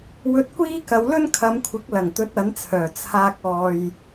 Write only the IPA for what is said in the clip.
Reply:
w ɵ˧ t̚ kʷ iː˥ k ɐ˨˧ w l ɵ˥ n kʰ ɐ˨˧ m kʷʰ ɪ˨˥ k̚ l ɐ˨˩ ŋ t̪ ɵ˨˥ t̚ ɐ˨˥ n t͡sʰ œː˨˩ t͡sʰ aː˧ k̚ ɔː˨ j

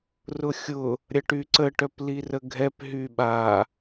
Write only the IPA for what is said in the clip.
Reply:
r ʊ xʲ ʊ | ɾʲ ɐ ʈ y ǀ ə ʈ œ p l i r ə ɡʱ ɛ p ɦ y ɓ a

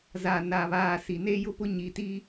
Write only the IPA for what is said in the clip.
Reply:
z a˨ n a˨ β aː˨ s i˨ n e˦ j ʊ˦ p ʊ˦ ɲ i˨ t i˦

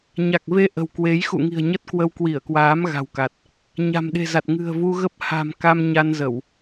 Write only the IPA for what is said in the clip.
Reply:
ɲ a˨˩ k̚ v e˧ ʔ ə̤˨˩ w k w e˨˦ j x ṵ˧˨ ŋ i̤˨˩ ə̯ ɲ ə˦˥ t̚ k w ə˧ w k w i˧˩ ə̯ k w aː˨˦ m ɣ a̤˨˩ w k a˨˩ t̚ | ɲ a̤˨˩ m ɗ e̤˨˩ z a˨˩ t̚ ŋ ɨ̤˨˩ ə̯ v u˧ ɣ ə˦˥ p̚ h a̤˨˩ m k a˧ m ɲ a˧ n z ə˧˩˨ w

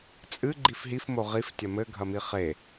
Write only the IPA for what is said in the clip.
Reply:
t͡sʼ ɨ ɡ͡ǃ i f ɦ i f m o ʁ i f tʲ ɐ m ɘ ɡʱ ɐ m i χ e

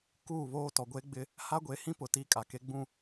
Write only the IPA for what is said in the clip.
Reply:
k uː˦˨ β oː˦ t ɔ˨ ɡʷ eː˦ ɡ͡b ɪ˦ | h a˦ ɡʷ e˨˦ h ĩ˦ p ʊ˨ t iː˦ kʼ a˨ k e˦ ɡ͡b ũ˦˨

